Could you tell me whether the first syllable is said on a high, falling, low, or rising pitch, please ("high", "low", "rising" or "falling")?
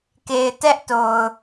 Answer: low